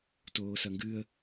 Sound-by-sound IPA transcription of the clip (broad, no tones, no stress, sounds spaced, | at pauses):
t oː s ɐ ŋ ɡ ɨ ə̯